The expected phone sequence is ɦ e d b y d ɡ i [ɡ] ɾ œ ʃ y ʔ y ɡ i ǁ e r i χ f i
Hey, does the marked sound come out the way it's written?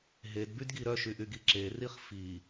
no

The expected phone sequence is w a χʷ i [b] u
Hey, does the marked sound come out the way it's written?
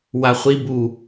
yes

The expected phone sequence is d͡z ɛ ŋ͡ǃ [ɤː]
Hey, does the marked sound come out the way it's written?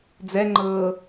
yes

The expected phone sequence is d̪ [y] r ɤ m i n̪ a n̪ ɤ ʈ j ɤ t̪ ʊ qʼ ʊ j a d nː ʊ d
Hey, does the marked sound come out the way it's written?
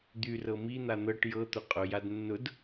yes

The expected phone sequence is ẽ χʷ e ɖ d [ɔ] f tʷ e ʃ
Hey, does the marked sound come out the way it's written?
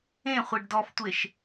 yes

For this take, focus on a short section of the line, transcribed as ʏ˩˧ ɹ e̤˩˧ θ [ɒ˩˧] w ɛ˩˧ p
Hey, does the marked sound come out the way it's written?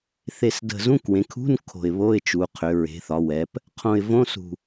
yes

